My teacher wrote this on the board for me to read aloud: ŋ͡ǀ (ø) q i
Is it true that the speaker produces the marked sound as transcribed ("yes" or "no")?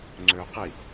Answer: yes